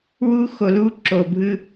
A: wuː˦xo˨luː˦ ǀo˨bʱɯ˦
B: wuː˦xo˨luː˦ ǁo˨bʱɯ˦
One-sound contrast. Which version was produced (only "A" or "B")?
B